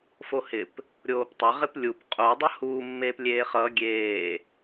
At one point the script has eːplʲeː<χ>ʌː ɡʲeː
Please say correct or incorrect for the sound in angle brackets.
correct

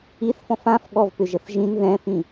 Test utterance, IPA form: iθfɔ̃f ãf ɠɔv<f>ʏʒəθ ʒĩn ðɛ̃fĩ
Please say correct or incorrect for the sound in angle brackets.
incorrect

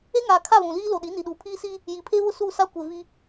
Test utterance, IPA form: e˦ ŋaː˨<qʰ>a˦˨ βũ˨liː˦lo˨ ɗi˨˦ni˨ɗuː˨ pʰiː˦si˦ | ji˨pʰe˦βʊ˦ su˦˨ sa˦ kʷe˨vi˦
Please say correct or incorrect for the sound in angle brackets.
incorrect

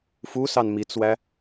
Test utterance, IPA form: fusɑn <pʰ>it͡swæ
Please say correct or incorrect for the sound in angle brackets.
incorrect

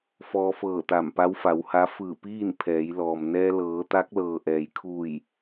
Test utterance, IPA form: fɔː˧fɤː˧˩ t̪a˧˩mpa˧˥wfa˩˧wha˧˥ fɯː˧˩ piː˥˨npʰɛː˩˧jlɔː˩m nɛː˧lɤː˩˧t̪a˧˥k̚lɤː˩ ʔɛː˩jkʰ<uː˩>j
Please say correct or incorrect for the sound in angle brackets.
incorrect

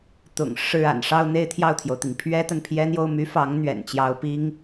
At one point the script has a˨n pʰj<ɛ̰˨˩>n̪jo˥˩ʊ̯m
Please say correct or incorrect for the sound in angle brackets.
incorrect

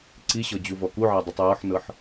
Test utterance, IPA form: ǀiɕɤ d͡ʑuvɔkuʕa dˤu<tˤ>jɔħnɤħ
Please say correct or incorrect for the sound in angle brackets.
correct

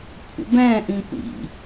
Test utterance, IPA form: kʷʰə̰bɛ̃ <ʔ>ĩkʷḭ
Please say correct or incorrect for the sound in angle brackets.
correct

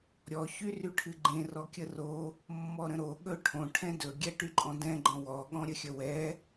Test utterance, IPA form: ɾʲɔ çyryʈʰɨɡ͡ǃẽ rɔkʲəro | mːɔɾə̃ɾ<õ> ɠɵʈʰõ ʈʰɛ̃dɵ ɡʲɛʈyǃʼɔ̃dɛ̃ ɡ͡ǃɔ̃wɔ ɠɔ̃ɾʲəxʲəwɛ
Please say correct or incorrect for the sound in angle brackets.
incorrect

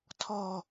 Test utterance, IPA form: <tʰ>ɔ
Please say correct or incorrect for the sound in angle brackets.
correct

